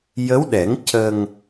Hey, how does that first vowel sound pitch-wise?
rising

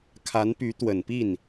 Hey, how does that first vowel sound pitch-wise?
rising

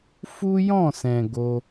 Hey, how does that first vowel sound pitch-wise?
high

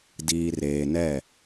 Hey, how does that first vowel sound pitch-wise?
low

